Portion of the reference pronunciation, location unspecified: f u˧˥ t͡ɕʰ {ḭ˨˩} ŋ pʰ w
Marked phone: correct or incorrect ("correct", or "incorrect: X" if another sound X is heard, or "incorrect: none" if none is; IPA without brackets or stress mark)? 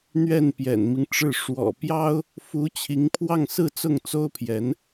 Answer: incorrect: i˧˥